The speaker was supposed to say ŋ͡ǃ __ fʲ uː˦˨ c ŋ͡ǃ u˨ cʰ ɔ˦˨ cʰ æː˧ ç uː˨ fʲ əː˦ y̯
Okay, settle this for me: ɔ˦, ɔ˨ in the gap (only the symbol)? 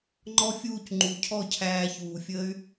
ɔ˦